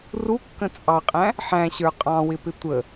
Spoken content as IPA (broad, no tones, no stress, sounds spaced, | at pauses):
r u kː ə̃ t͡sʼ ɑ qʼ æ̃ | ħ æ̃ ɕ ə˞ qʼ ɑ̃ w ɪ p ɪ tʷ ə